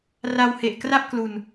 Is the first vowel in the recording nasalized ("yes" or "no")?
no